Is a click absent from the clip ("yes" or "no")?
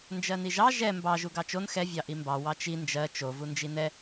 yes